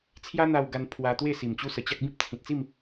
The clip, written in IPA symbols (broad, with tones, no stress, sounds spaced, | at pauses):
t͡sʰ j a˦ n̪ a˧ w ɡ a˧ n pʰ w a˧ t̪ w e˥˧ s i˨˩ m t͡ɕ u˦ s ə˨˩ t͡ɕ a˦ k̚ b ĩ˦ p̚ t͡sʰ ĩ˨ t̚ t͡s i˥˧ m